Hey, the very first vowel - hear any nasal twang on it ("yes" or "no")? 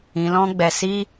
yes